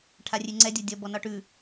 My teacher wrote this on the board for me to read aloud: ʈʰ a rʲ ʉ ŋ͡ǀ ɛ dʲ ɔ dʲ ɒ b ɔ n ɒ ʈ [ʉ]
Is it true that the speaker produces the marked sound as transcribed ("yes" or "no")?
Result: yes